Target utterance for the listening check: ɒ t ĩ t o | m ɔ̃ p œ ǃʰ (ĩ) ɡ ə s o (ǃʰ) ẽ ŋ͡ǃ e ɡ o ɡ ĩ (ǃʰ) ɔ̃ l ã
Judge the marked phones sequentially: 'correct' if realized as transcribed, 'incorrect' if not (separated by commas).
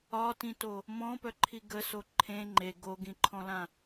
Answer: incorrect, correct, correct